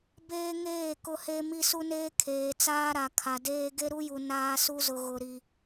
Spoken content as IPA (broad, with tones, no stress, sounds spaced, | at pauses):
b eː˦ ŋ eː˦˨ k ʊ˦ h e˦ m i˦ s u˦ n eː˦ kʰ eː˨ t͡s aː˦ ɾ a˨ kʰ a˨ d eː˦ ɡ e˦ ɾ u˦ j u˨ n aː˦ s u˦ z ʊ˨ ɣ ʊ˨ ɾ i˨